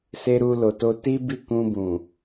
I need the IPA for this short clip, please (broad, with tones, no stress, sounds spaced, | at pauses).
s e˧ ɾ u˧ l o˨ t o˧ t i˦ b i˦˨ k ũ˧ b ũ˨